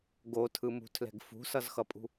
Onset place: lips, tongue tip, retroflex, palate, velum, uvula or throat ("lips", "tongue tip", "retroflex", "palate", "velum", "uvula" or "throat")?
velum